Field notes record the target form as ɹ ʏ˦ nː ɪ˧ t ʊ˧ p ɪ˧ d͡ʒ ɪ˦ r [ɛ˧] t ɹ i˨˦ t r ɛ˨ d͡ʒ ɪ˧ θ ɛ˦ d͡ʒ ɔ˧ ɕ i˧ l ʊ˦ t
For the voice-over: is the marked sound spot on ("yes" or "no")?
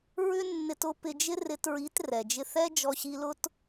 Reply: no